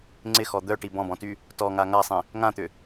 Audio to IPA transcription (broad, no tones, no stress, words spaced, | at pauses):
ŋ͡ǀɪxɔ d̪œʈi bɔ̃bɔ̃ty | tɔŋa ŋasˤĩ | ŋãt̪ʏ